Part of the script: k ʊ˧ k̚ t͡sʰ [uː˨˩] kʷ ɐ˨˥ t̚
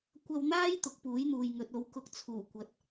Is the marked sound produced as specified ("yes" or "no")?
yes